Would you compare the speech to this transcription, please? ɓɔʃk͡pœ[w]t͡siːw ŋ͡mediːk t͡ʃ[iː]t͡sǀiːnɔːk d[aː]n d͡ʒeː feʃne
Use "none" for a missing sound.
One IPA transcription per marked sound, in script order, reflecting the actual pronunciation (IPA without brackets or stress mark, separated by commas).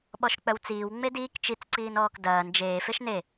w, i, ɐː